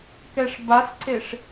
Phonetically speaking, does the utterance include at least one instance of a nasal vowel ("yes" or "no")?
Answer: no